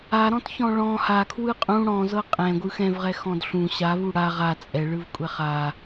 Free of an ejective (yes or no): no